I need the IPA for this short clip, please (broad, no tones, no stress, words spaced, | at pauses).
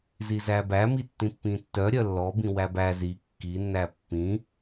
zizæbæmi tːĩpːĩtːœ ɾʲœlːɔbĩ wæbæ zi kːinːæ pːĩ